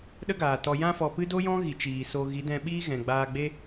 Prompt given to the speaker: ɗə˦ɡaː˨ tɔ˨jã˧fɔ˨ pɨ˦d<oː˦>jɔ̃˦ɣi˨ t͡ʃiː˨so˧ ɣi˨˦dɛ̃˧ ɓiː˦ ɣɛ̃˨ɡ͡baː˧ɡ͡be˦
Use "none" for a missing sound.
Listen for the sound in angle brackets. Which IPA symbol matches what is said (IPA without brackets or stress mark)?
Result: o˦